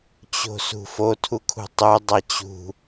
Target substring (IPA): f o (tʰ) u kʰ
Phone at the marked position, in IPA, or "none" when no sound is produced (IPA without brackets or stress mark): tʰ